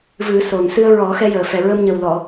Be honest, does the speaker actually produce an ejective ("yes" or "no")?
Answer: no